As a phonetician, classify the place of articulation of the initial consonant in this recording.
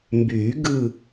labial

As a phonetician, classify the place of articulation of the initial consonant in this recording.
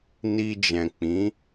alveolar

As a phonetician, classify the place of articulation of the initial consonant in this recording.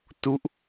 alveolar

